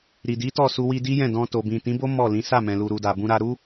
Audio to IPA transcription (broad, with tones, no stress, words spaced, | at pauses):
ɾi˨di˨˦ tɔ˦˨su˧wi˧di˦ jɛ̃˦˨dɔ̃˧to˨ bĩ˨tĩ˨˦bo˦ mɔ˦˨lĩ˨˦ sa˦˨mɛ̃˨lu˨ ɾu˨da˨bũ˧ ɾa˧ ɾu˦